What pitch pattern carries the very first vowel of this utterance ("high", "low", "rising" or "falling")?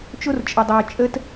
high